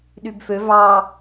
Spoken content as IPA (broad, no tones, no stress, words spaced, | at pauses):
ɗybfø vɑ